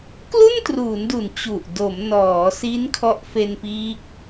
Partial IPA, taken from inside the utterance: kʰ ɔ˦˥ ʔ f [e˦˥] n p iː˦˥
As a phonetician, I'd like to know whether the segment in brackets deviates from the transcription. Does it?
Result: yes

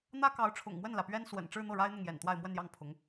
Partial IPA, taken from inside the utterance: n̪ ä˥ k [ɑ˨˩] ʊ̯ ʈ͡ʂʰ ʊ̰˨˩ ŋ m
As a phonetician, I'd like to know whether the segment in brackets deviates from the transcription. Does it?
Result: yes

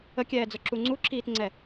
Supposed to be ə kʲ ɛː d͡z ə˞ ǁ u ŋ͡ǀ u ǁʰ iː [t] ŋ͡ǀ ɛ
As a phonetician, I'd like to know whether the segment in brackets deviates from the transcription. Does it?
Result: no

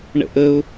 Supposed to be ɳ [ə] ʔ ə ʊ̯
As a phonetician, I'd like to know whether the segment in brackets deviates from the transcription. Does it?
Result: yes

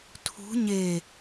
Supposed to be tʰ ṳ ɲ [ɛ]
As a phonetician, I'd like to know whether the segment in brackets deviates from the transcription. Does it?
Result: yes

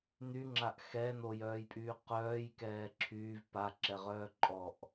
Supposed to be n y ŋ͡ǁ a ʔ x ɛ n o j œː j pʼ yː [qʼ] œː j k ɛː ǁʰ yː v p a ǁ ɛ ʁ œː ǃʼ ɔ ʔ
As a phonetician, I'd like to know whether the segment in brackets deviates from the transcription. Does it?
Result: yes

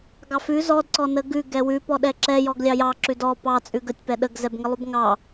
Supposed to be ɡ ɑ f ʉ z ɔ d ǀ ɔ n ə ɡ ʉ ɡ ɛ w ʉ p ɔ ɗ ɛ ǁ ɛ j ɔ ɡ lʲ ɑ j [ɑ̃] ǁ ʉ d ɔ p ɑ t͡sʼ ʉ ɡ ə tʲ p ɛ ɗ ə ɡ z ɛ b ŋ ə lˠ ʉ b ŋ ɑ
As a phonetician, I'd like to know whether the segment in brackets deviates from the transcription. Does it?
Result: yes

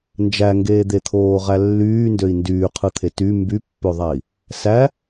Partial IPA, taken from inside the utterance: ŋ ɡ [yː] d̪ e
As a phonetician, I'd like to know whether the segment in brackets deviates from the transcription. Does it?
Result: yes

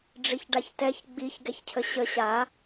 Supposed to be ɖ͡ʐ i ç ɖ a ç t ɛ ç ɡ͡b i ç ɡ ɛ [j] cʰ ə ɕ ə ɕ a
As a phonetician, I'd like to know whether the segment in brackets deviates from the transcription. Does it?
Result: yes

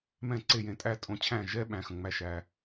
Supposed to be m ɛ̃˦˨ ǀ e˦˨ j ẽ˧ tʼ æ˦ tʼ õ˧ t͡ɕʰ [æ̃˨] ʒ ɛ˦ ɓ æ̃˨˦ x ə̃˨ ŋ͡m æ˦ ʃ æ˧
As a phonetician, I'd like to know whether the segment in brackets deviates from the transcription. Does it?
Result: yes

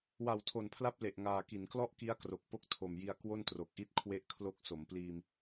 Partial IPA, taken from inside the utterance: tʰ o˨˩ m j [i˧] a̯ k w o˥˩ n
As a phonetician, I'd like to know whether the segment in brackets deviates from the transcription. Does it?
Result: no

